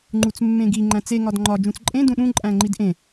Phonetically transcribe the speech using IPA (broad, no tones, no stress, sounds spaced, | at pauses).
ŋ͡ǃ u t͡s mː ẽ ɡ i ŋ͡ǃ æ̃ t͡s e ŋ ɒ d ŋ͡ǃ ɒ d͡ʒ ũ t͡s ǃʼ ẽ d ũ ɗ ũ ǃʼ æ̃ ŋ͡ǃ i d ʔ ẽ